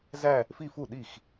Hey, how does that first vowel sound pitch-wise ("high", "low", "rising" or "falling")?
falling